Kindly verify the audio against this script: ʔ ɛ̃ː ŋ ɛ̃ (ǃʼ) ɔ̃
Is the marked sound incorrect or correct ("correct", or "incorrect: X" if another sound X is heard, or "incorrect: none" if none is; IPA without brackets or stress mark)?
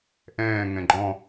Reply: incorrect: ɡ͡ǃ